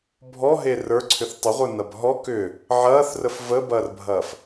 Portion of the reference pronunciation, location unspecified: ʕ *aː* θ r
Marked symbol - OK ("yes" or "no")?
no